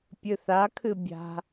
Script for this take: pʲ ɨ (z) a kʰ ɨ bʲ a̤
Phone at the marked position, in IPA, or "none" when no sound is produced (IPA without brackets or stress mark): θ